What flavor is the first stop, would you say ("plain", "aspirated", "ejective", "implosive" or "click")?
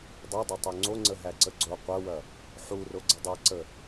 plain